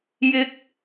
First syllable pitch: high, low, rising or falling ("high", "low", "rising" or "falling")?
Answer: high